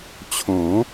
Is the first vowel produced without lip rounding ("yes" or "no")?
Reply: no